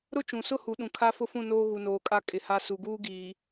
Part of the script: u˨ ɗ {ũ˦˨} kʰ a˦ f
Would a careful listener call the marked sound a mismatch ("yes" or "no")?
yes